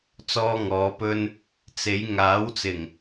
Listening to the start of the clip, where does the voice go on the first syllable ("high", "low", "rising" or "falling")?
high